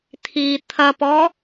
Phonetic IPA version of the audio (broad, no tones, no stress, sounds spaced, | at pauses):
t̪ʰ i t̪ʰ ɐ p ɔ